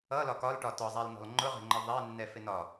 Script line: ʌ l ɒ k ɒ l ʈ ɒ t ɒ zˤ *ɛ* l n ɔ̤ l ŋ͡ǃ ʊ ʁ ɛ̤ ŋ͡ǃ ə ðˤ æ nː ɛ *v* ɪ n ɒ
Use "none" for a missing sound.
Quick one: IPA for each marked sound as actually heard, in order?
æ, f

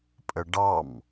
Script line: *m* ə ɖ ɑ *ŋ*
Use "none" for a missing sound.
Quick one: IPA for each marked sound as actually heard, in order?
pʼ, m

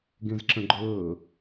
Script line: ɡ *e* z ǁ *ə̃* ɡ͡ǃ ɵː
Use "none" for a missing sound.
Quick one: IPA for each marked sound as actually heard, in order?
ẽ, ə̃

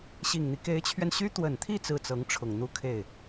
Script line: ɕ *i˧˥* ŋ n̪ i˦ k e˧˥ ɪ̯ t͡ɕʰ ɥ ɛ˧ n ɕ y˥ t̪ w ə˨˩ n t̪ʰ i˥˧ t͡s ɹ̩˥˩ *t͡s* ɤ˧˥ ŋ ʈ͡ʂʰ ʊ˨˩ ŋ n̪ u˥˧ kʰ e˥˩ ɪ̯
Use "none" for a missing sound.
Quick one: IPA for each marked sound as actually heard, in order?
i˨˩, t͡s

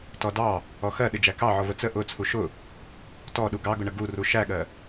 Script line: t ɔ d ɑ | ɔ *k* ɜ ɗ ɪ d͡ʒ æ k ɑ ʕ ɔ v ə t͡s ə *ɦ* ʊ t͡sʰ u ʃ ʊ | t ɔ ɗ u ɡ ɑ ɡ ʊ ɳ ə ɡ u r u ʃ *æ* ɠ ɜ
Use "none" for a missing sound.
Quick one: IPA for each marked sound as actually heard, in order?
x, ʔ, æ

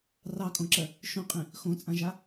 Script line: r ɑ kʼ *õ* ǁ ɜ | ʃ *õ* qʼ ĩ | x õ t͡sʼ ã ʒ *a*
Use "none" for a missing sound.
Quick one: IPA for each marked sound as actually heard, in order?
õ, õ, a

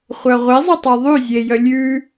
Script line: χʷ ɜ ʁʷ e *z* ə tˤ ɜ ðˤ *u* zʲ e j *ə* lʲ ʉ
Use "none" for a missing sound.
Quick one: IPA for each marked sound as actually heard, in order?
zˤ, ʉ, ə

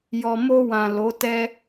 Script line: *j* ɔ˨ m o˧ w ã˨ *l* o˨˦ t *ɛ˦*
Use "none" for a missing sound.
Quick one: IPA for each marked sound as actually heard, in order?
j, l, ɛ˦

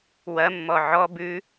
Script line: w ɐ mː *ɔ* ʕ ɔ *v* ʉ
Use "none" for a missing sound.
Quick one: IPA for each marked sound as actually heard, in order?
ɔ, b

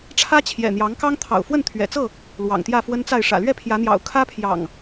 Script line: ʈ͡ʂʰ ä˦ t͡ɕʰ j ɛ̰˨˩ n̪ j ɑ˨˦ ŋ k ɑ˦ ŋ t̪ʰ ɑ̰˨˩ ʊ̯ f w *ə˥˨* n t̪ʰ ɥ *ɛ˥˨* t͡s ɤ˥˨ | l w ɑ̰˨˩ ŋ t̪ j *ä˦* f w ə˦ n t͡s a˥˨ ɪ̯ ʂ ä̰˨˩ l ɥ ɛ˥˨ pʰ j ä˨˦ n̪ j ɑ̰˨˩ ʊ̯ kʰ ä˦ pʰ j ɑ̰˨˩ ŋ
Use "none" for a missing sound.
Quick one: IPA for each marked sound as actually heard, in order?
ə˥˨, ɛ̰˨˩, ä˥˨

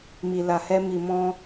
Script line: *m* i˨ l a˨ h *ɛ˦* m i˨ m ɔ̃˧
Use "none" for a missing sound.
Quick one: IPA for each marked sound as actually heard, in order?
m, ɛ˧

